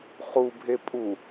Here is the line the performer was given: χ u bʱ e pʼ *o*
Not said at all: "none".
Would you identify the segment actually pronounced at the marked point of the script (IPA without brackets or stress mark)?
u